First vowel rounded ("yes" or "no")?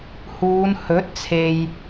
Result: yes